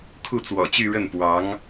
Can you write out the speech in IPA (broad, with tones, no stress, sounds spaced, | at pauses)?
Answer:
kʰ u˥˩ t͡s w ɔ̰˨˩ t͡ɕ y˥˧ ɻ ə˥˩ n p w ɑ˧˥ ŋ